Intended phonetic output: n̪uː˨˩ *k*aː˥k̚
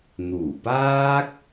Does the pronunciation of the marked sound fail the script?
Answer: yes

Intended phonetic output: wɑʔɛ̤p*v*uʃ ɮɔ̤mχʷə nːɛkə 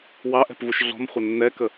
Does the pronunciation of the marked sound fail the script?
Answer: no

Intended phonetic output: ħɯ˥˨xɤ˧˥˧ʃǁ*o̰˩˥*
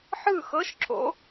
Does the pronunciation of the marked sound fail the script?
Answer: no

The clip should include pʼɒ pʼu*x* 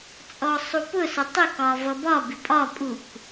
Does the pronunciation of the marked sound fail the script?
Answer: yes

